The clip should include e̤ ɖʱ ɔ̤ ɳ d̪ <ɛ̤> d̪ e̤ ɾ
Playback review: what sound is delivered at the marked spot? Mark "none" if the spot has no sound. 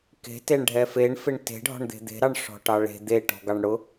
e̤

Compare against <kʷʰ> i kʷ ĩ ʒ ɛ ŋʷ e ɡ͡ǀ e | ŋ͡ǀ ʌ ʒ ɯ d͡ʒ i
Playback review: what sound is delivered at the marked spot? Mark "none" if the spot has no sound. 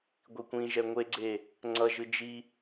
ɡʷ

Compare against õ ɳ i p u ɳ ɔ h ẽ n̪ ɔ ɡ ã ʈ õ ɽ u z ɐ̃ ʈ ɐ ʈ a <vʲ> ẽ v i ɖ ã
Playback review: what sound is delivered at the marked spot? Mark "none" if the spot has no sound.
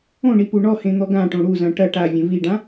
vʲ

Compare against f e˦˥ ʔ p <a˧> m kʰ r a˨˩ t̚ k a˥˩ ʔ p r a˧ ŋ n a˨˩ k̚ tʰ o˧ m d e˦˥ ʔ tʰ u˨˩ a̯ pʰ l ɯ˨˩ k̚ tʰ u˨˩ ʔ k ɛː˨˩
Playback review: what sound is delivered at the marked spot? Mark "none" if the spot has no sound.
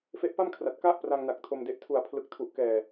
a˥˩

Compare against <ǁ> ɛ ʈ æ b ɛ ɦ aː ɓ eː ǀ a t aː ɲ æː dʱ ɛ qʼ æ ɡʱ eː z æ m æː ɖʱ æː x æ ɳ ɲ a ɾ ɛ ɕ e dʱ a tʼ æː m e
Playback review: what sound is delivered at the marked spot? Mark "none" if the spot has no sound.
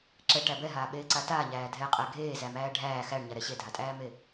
ǁ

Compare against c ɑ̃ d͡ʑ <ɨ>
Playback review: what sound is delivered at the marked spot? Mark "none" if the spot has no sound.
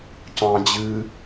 ɨ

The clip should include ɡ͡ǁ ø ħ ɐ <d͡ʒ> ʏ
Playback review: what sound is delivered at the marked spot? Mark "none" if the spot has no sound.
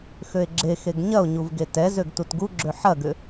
ɡ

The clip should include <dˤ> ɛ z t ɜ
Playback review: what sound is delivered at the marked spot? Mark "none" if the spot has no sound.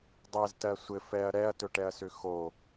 dˤ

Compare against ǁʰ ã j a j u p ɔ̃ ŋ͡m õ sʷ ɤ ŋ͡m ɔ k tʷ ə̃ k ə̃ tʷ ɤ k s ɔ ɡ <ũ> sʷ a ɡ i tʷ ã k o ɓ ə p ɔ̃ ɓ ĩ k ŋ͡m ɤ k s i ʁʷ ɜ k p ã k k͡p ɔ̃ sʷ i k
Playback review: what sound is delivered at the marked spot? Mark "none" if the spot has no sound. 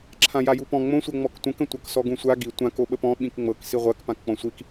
ũ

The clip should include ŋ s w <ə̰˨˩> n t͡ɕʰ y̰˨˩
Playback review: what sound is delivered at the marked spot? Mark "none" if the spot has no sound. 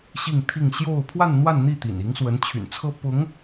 ə˧˥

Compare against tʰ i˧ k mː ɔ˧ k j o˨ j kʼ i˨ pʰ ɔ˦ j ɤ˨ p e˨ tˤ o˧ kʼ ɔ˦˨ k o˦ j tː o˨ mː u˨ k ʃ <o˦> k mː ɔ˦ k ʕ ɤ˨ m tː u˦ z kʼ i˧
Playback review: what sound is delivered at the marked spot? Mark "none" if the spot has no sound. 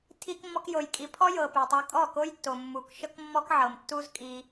ɤ˦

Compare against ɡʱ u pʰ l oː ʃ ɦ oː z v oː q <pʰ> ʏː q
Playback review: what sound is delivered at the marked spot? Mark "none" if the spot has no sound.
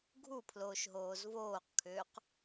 kʰ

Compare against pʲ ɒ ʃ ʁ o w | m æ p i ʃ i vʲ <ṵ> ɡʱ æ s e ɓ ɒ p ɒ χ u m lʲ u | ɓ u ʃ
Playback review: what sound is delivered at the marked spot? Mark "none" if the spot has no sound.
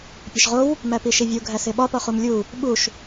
u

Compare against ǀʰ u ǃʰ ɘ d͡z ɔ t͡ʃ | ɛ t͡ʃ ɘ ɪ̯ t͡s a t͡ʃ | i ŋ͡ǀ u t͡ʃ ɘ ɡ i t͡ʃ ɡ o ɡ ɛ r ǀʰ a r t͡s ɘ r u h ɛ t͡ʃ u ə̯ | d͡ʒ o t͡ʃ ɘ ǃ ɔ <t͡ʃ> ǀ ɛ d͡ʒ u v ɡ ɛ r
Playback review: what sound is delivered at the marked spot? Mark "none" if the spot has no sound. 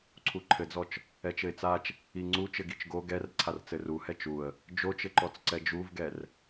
t͡s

